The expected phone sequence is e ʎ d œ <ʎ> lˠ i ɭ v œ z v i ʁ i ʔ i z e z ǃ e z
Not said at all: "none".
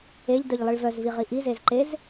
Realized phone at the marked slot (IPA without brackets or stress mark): ʎ